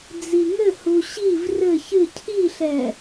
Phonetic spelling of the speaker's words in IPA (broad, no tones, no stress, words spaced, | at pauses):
d͡ziŋɘhu ɕiv rɘ çɨ cʰiɬɛ